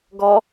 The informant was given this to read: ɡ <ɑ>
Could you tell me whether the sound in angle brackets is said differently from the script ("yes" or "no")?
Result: yes